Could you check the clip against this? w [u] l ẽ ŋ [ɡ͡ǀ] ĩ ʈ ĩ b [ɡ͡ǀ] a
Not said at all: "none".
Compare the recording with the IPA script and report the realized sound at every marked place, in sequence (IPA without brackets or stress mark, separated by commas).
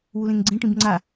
u, ɡ͡ǀ, ŋ͡ǀ